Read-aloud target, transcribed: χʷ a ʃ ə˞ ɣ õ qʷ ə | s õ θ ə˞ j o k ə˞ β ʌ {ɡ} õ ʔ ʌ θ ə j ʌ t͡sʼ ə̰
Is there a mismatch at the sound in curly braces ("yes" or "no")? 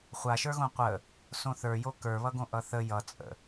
no